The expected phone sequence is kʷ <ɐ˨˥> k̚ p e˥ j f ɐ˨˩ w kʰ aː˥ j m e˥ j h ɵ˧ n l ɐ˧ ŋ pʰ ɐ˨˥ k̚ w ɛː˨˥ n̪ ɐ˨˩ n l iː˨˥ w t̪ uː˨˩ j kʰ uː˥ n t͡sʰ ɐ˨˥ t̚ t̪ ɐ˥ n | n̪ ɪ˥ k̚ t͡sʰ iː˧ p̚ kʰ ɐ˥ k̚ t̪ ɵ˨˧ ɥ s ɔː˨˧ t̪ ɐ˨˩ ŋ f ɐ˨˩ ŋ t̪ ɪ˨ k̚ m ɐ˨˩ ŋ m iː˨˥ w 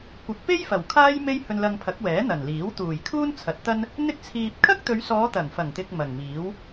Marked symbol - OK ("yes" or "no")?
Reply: yes